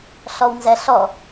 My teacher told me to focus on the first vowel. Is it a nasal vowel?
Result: no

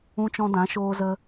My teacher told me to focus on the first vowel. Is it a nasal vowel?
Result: yes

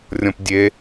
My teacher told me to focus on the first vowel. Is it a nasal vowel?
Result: yes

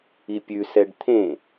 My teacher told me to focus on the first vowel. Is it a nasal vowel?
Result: no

